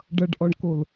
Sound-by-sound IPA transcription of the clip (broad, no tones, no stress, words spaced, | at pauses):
ɖʌɖʔɔɳkol